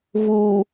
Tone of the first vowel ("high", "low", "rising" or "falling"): low